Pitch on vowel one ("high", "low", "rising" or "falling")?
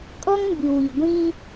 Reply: high